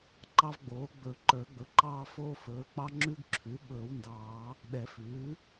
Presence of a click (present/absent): present